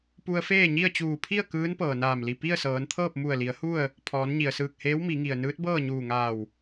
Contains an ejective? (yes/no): no